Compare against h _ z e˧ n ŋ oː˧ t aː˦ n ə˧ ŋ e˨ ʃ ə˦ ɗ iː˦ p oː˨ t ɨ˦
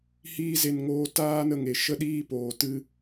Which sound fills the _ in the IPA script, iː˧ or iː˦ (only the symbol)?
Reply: iː˦